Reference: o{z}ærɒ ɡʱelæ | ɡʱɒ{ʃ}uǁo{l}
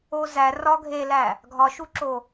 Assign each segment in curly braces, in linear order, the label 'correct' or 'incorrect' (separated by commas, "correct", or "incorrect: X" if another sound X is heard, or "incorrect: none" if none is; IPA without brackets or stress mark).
correct, correct, incorrect: none